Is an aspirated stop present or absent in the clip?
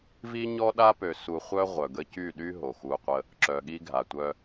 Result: absent